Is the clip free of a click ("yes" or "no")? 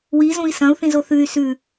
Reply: yes